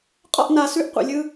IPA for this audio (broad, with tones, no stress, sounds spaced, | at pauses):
qʼ ɔ̰˦˨ ʔ n a˨ s ʉ˧ ʔ qʷ ɛ̰˨ lʲ ɯ˧